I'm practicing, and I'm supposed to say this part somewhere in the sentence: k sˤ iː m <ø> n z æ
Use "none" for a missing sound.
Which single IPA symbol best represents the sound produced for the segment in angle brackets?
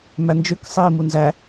u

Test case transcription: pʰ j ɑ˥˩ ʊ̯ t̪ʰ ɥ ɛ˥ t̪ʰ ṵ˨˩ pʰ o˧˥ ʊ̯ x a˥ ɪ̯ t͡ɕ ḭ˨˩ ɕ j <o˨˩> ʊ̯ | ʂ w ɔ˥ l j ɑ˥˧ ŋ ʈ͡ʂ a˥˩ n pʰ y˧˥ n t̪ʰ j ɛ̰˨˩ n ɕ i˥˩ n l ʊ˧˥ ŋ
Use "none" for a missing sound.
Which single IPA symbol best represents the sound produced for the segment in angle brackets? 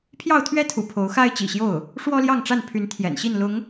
o˥˩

